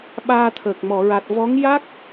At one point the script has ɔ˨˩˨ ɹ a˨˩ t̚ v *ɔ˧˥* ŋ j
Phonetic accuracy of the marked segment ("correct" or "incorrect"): correct